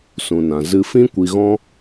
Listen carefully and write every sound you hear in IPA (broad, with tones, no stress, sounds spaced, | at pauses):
s ũ˨ n ã˨ z ɨ˧ f ĩ˦ kʷ i˧ ɣ ɔ̃˦